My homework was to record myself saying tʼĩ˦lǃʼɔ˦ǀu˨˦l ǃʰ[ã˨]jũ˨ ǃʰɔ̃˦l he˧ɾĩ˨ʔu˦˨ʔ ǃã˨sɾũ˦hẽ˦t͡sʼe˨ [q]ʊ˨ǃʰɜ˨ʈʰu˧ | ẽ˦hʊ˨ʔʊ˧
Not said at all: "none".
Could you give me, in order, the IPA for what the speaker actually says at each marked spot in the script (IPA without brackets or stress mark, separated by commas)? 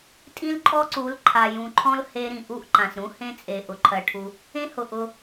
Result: a˨, ʔ